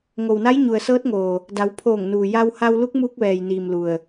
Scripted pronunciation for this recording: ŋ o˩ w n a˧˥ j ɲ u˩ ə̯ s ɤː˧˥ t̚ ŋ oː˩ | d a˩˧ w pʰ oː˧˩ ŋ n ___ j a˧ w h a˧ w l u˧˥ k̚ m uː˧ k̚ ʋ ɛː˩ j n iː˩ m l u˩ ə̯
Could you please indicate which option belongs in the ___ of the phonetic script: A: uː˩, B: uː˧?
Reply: A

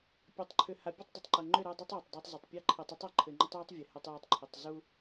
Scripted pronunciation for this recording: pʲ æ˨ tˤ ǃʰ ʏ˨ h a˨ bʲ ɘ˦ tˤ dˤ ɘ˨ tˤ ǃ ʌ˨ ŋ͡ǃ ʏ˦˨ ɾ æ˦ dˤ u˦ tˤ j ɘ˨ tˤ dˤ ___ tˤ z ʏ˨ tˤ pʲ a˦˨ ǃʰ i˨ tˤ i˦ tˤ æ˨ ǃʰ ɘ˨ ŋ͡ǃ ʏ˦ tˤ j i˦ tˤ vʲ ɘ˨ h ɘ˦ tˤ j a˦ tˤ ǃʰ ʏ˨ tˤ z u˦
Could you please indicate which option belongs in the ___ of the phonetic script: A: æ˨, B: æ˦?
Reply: B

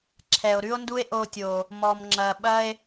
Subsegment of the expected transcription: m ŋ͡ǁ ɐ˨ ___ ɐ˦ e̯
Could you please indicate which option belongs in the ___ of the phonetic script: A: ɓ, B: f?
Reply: A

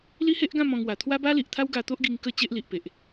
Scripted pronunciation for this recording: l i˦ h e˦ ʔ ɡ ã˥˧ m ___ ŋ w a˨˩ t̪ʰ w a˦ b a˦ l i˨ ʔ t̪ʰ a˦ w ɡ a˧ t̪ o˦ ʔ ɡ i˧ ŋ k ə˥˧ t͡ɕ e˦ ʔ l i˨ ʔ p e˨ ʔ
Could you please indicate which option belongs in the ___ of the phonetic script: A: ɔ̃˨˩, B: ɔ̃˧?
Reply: B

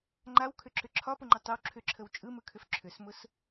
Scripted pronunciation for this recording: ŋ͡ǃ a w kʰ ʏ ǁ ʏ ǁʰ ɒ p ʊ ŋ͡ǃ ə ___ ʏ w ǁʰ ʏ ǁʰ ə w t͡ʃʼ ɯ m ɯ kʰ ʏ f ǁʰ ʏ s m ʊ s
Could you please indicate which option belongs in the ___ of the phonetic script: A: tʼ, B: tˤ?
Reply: B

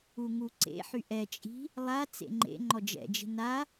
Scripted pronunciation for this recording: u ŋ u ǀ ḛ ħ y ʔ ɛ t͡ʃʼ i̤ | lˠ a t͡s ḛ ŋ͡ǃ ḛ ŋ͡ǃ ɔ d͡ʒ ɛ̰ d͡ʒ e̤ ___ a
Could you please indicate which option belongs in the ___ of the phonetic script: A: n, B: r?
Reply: A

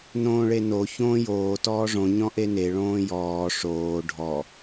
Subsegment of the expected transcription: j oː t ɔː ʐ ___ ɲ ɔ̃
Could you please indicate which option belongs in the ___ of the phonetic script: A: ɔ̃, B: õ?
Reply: B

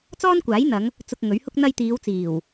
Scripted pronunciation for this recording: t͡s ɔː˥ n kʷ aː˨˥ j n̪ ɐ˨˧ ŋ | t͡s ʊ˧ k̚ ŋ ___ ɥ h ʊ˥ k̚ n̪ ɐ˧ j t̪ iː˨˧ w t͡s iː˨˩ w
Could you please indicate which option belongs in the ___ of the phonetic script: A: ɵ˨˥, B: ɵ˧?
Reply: A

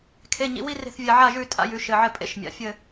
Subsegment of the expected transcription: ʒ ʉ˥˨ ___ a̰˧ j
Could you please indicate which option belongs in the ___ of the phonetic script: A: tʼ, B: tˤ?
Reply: A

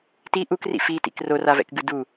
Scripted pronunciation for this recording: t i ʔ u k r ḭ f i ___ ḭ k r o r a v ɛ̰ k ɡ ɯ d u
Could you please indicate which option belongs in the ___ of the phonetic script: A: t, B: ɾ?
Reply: A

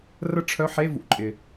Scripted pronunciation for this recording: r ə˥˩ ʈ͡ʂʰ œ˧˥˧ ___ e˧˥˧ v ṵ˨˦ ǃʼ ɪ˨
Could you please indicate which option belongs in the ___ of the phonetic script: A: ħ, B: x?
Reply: A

